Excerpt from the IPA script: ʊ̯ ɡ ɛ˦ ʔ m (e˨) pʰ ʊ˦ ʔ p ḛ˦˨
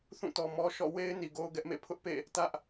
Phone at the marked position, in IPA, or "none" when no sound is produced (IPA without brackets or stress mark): ḛ˦˨